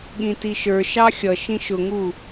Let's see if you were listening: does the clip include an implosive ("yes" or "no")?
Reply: yes